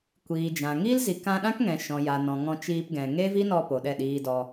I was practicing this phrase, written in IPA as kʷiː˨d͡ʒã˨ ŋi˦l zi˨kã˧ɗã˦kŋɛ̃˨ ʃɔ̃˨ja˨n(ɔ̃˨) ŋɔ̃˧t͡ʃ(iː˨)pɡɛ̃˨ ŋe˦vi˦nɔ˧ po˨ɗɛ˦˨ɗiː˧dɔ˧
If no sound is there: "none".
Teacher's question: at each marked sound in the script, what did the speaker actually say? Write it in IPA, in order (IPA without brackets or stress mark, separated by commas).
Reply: ɔ̃˨, iː˧